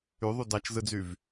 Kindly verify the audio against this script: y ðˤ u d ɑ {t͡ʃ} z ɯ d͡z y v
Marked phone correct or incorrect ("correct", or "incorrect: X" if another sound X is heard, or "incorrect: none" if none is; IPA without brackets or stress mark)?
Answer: correct